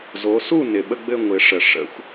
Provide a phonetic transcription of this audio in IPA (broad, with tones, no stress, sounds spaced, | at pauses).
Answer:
z o˩˧ s u˦˨ n ɪ˩ ɓ ə˦˨ ɡ͡b ɘ˦˨ ŋʷ ɪ˩˧ ʂ ə˩ ʂ ə̰˩˧ xʷ